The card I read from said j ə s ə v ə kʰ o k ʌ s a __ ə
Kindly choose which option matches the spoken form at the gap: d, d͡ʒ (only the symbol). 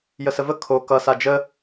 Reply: d͡ʒ